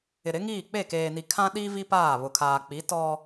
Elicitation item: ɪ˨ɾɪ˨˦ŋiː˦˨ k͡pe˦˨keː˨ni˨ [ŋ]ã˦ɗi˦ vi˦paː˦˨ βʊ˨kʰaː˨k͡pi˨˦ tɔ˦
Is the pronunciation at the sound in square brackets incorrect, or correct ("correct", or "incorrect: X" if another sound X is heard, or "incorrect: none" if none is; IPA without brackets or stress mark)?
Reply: incorrect: kʰ